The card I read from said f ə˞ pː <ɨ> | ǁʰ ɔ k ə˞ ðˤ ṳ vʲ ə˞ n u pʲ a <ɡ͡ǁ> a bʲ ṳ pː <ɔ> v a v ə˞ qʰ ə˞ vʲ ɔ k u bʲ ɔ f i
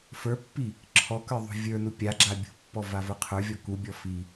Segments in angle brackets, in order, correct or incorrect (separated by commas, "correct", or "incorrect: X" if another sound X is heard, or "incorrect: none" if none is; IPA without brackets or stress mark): incorrect: i, correct, correct